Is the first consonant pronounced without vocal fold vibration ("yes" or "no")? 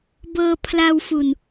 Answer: no